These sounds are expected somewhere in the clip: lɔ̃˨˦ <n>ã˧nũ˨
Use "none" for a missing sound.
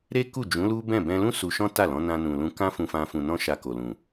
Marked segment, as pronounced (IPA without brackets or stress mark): n